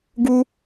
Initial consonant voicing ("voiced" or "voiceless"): voiced